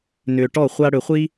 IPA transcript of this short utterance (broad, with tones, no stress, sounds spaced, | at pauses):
n ʏː˨ ʈ ɔ˦˨ χʷ a˧ ɽ ʏ˨ χʷ i˦